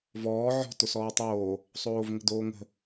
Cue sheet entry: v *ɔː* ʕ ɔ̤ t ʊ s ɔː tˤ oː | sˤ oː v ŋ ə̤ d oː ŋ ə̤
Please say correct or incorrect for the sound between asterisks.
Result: correct